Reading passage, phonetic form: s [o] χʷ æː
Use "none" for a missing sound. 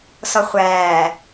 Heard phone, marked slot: ɔ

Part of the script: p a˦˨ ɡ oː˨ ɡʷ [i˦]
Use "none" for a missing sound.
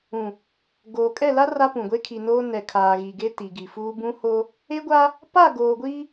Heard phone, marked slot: i˦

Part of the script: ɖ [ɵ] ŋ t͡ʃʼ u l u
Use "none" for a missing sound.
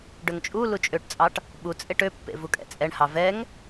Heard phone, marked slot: ø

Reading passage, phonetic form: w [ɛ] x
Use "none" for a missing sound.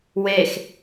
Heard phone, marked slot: e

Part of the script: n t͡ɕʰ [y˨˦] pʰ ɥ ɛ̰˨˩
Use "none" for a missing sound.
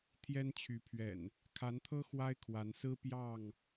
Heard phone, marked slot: y˨˦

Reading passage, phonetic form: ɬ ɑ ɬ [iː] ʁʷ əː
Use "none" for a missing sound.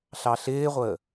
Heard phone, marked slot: ɪː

